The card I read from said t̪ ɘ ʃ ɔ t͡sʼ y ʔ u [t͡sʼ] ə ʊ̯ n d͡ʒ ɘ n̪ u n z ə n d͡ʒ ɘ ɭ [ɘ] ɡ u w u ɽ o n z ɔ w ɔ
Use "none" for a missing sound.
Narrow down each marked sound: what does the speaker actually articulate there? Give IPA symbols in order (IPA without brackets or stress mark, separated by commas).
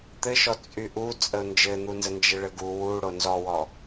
t͡sʼ, ɘ